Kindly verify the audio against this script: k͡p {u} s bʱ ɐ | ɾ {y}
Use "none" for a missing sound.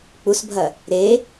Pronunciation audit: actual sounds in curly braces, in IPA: u, e

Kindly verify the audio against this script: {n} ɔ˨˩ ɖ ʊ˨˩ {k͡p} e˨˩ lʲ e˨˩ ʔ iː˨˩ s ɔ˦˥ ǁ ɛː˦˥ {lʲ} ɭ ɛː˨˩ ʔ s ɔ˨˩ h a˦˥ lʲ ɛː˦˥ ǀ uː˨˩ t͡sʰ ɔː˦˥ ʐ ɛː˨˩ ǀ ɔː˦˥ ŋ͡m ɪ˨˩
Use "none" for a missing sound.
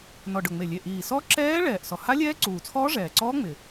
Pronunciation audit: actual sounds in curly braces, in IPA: n, ŋ͡m, none

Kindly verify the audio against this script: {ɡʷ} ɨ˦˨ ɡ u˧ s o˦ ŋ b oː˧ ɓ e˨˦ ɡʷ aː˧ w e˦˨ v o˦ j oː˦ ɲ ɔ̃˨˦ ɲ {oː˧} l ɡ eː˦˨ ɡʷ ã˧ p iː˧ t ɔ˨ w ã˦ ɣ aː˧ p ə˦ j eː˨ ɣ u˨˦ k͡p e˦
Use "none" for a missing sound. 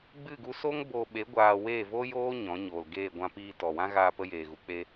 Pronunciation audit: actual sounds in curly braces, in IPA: ɡ͡b, oː˨

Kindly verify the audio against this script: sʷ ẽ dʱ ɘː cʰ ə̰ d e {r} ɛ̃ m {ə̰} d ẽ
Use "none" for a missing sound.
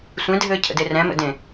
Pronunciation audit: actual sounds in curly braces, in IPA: r, ə̰

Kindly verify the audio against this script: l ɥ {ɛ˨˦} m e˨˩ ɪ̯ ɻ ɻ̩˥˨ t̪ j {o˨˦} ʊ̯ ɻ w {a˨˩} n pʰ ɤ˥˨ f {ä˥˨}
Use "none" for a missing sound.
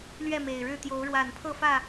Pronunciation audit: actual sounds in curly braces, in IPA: ɛ˥˨, o˨˦, a˨˩, ä˥˨

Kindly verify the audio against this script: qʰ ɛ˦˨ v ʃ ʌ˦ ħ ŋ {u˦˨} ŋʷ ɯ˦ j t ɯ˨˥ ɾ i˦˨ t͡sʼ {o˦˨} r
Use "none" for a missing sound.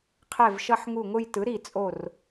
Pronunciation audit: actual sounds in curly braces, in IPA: u˦˨, o˦˨

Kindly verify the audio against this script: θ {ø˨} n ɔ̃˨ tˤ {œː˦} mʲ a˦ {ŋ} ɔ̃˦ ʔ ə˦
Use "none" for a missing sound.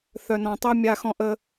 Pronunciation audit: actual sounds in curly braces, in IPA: œ˨, œ˦, x

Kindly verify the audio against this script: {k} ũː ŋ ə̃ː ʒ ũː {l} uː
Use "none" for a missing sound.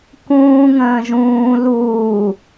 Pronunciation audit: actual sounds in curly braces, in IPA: k, l

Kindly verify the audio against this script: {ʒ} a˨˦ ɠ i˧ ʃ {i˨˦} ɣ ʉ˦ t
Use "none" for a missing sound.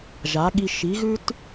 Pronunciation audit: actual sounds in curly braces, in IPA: ʒ, i˨˦

